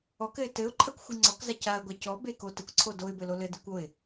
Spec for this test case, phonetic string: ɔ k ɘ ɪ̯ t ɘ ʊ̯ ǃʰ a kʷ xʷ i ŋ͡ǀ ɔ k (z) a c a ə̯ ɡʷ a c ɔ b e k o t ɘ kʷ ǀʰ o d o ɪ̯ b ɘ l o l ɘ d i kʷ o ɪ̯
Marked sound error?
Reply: no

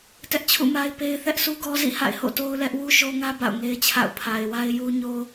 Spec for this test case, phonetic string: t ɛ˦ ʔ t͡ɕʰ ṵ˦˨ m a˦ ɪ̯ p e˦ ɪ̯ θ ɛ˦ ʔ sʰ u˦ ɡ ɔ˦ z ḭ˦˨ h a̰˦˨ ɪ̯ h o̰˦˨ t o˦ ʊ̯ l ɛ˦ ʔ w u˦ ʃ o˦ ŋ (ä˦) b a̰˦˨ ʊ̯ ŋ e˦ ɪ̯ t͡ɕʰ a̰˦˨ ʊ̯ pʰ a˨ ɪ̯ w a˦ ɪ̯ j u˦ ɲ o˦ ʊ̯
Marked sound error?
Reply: no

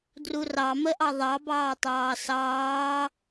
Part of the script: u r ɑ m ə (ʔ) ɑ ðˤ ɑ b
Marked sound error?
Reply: no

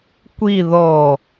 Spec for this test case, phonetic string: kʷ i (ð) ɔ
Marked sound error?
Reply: no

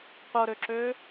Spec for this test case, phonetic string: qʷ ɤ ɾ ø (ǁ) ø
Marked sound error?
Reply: no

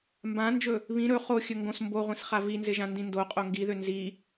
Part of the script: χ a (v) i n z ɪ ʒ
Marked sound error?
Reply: no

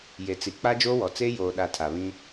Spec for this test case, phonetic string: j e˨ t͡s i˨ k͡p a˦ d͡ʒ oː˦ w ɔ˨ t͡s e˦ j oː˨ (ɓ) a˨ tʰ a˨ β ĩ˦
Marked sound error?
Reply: yes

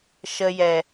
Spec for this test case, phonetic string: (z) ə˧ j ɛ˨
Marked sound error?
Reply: yes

